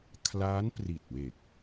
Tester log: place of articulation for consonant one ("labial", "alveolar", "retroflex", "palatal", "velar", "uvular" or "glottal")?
velar